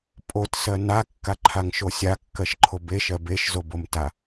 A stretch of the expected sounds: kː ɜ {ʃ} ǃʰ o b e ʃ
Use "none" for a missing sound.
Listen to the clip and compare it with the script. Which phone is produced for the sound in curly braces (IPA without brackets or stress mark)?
ʃ